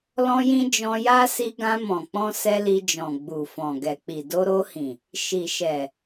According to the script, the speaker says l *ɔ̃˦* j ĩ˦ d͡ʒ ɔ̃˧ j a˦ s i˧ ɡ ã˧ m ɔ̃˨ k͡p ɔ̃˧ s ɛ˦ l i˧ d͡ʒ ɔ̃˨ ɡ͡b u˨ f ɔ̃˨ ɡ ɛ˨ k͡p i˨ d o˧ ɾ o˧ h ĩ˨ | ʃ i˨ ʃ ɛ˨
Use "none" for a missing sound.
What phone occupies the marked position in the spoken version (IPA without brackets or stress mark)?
ɔ̃˦